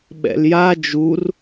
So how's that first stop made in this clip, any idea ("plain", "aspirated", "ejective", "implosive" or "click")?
implosive